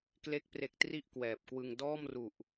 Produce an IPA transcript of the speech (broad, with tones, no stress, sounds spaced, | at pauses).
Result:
k l e˦˥ k̚ p r e˨˩ k̚ t r i˦˥ ʔ k w ɛː˨˩ p̚ k w ɯ˧ ŋ d ɔː˥˩ m r u˨˩ ʔ